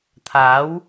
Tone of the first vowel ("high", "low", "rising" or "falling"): rising